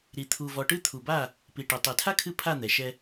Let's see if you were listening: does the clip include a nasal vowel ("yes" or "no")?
no